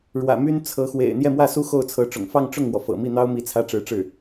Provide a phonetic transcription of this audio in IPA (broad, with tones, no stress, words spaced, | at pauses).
ɻwä̰˨˩my˥n t͡sʰɤ˧˥xwḛ˨˩ɪ̯ n̪jɛ˥˧mwä˥˩su˥ xo˥˩ʊ̯t͡sʰɤ˧˥ʈ͡ʂʊ̰˨˩ŋ fɑ˥˧ŋʈ͡ʂʊ˥˩ŋmwɔ˩ fɤ̰˨˩mi˥˩n̪ɑ˥ʊ̯mi˧˥ t͡sʰä˥ʈ͡ʂɻ̩˧˥ʈ͡ʂɻ̩˥˩